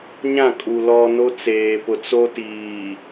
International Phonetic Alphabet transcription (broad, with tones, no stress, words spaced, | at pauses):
ɲã˦˨kʼu˨ lɔ˨ no˦t͡seː˨ pʊ˨t͡so˦tiː˨